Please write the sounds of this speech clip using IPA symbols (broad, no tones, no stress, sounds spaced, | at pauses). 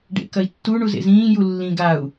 ɖ ḛ k ɐ i̯ tː u ɳ u z ḛ z ĩː j u lː ĩ ɡ a u̯